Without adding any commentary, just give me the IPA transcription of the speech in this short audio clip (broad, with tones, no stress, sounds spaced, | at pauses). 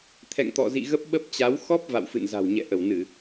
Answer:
t̪ʰ ɛ̰˧˨ ŋ t̪ ɔ̰˧˨ z ḭ˧˨ ɣ ə˦˥ p̚ ɓ ə˦˥ p̚ t͡ɕ a˨˦ w x ɔ˦˥ p̚ v a̰˧˨ w f ɨ̰˧˨ n z a̤˨˩ w ɲ ɛ̰˧˨ ʔ ə˧˩ w n ɨ˧˩˨